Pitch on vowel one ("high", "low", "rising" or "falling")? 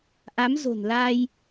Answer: rising